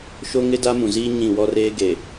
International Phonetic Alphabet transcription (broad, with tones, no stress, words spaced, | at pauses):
ʃo˦ŋɪ˦ da˦mũ˨ziː˦ ɲĩ˦˨ wɔ˦reː˦ ɡe˨